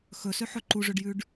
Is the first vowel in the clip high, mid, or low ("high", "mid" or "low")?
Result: mid